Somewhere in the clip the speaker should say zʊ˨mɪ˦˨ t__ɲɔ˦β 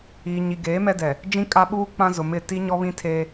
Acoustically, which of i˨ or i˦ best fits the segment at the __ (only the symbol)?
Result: i˦